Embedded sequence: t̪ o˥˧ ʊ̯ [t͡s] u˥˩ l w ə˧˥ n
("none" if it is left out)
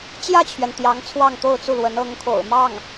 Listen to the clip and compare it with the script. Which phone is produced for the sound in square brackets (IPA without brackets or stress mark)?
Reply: t͡s